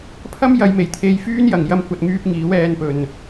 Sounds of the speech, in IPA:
pʰɐ˥mjɐ˨˧jme˨˩j t̪ʰe˧jfyː˥n jɐ˨ŋjɐ˥mkʷɐ˧t̚ŋyː˥p̚ ŋiː˨˥wɛː˧n pɵ˨n

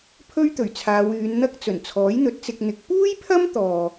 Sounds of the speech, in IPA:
pʰɵ˥ɥt̪ɵ˨˩ɥt͡sʰaː˨˧w yː˨˧nn̪ɐ˥k̚ t͡sɵ˨˩nt͡sʰɔː˨˥jn̪ɵ˨˥t̚t͡sɪ˧k̚ n̪ɪ˨˥k̚ puː˥jpʰɐ˥m t̪ɔː˧

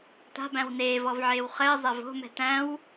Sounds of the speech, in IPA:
ta̤bæ̃w neːvɔvʕeːw χɘːzˤæv o̤mɛ̤ tæ̃w

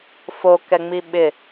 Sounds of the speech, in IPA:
fokɛŋ͡mi ɓɪ

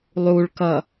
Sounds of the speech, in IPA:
lˠuɭkʌ

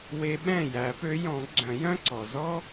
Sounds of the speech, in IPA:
we˧˥ɓɛ̃˥˩ jæ˨˩˦pø˧˥jɔ̃˨˩˦ ɡ͡ǀœ̃˨˩˦jœ̃˥ǀɔ˩ zɔ˥

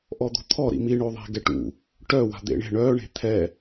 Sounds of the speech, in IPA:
ʔɔd̪o̤t̪ʰɔ ɾḭmi ɳoðˤe̤ɡɛʈṵ | ʈœ wa̤d̪ḛɳe̤ ɳœ ɳe̤t̪ʰɛ

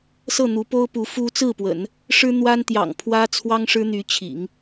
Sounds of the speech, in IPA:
sɤ˥˩ n̪u˧˥po˥ʊ̯pu˧˥ fu˥ t͡sɹ̩˥˩pwə̰˨˩˦n | ʂɻ̩˥n̪wa˥nt̪jɑ̰˨˩ŋpʰwä˥ t͡sʰwɑ˥ŋʂɻ̩˥n̪y˧˥t͡ɕʰḭ˨˩˦ŋ

